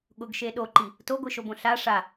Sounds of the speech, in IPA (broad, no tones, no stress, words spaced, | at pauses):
ɠʊɡʃe ɗoǃi | toɡʷiʃobõ ɬa ʂa